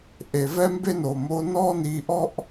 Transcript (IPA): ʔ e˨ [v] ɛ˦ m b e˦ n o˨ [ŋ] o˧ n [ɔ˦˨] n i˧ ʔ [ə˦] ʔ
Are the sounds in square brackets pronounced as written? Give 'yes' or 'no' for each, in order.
yes, no, no, no

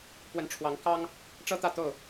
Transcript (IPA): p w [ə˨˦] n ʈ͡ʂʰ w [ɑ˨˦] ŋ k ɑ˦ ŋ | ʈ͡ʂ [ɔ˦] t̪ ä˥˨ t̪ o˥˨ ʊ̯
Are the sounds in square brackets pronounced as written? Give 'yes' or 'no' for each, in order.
yes, yes, no

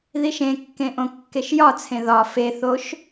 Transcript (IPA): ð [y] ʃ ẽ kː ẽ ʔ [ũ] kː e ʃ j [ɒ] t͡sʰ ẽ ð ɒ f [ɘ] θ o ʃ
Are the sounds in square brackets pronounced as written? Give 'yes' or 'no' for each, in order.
no, no, yes, no

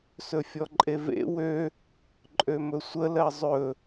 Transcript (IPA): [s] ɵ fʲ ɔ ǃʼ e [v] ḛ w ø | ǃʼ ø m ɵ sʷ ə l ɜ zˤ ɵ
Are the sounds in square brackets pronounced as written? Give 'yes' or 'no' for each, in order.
yes, yes

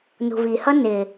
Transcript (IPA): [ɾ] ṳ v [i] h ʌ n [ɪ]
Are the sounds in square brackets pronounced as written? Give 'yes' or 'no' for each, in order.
no, yes, yes

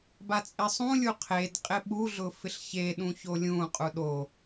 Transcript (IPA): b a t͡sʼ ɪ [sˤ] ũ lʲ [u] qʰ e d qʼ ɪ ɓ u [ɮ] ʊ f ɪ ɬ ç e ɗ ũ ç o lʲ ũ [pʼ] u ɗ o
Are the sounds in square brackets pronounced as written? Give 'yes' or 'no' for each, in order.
yes, yes, yes, no

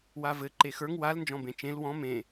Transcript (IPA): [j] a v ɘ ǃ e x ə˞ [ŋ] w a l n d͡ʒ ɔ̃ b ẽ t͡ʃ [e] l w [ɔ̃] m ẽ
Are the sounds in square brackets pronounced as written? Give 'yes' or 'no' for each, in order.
no, yes, no, yes

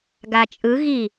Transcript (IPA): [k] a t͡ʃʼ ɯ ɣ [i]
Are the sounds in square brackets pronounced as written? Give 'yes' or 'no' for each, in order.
no, yes

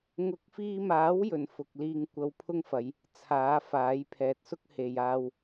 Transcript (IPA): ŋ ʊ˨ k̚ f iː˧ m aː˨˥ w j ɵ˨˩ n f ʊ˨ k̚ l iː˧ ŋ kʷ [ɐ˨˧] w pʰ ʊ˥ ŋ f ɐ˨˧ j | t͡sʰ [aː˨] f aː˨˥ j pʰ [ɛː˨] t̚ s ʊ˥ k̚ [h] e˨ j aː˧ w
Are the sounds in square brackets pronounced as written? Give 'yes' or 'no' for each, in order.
no, no, yes, yes

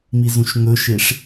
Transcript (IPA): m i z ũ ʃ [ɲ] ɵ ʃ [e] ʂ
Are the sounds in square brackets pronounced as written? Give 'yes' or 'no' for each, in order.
no, yes

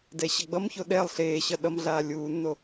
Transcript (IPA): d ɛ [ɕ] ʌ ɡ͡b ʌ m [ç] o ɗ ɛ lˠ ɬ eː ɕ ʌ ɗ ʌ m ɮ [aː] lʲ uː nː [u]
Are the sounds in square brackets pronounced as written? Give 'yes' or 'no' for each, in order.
yes, yes, yes, no

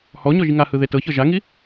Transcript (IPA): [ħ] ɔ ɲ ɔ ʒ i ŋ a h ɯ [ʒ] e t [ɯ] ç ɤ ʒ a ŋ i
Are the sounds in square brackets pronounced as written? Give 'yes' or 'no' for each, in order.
no, no, no

